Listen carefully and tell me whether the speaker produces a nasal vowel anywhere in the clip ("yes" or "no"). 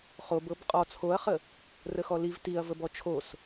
no